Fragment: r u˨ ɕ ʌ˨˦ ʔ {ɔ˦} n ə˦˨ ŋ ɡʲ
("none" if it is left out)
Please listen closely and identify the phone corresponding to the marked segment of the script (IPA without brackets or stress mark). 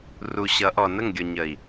ɔ˨